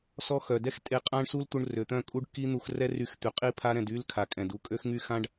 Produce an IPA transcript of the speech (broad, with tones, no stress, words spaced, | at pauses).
sɔ˦xœ˨ dɛ˦xtʼe˧ qʼã˦ɳ su˦lt̪u˧ɳ rø˨t̪œ̃˦˨kʼu˦ɖ ki˦ n̪u˧xrɛ˦ry˧xt̪y˨ qʼi˦pʰa˦ɾɛ̃˧d y˦lkʰa˨kʼɛ̃˨d u˦kʼø˦xŋy˦xã˦ɖ